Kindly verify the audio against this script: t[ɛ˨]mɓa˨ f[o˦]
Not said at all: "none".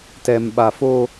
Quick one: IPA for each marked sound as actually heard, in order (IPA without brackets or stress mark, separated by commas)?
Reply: ɛ˨, o˦